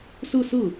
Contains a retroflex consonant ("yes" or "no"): no